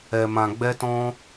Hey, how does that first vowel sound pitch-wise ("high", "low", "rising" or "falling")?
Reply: low